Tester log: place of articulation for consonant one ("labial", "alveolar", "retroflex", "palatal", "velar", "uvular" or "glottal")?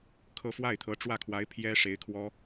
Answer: velar